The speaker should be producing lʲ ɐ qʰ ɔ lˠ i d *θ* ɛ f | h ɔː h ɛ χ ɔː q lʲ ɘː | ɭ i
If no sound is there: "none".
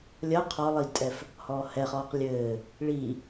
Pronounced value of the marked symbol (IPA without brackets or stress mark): tʼ